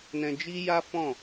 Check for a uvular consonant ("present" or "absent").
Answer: absent